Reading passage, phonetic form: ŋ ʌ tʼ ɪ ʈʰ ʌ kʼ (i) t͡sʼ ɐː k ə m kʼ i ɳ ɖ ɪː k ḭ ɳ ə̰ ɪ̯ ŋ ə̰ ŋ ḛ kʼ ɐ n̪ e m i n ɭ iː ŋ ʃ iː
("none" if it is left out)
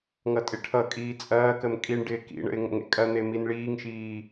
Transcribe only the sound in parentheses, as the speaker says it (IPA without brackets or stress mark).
iː